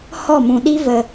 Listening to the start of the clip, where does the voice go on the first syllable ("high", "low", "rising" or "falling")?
falling